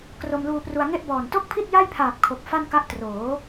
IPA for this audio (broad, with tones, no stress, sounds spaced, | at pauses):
k r o˧ m l uː˧ p r u˧ a̯ ŋ e˥˩ ʔ b ɔː˨˩ n t o˥˩ k̚ pʰ i˥˩ t̚ j a˥˩ j pʰ aː˨˩ p̚ kʰ o˨˩ k̚ f a˥˩ n k a˦˥ ʔ t r oː˩˦